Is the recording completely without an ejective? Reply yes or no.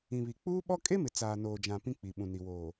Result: no